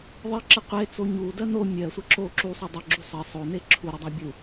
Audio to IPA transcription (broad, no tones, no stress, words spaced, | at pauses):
ðˤɘǁɘ qʷet͡so ɲudɜ no mʲɜsʷɘ ǁo ǁusˤu dˤɘɡ͡ǁu sˤɘ sˤone ǁʰuɾodˤa bʲu